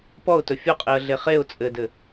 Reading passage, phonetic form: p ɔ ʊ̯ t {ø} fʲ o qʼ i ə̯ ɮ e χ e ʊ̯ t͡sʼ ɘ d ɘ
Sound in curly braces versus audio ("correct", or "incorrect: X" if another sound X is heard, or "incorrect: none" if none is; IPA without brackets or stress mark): incorrect: ɵ